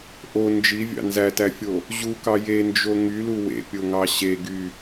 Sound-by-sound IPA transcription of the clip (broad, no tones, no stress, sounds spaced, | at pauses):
ʔ o n d͡ʒ i vʲ ɑ̰ n z æ t æ fʲ o | ʑ u k ɑ j e n d͡ʒ o ŋ y l u w ḛ pʲ o ŋ ɑ ɕ e ɡ y